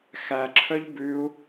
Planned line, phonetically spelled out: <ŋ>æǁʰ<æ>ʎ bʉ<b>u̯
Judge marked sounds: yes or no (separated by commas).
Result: no, no, no